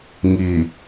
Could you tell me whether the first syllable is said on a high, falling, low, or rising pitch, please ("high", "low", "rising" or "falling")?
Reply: low